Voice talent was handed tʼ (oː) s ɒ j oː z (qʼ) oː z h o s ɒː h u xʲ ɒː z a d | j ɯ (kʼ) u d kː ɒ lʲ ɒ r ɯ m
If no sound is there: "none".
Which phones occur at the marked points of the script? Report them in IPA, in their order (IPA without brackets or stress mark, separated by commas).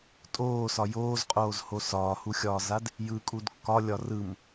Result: oː, qʼ, kʼ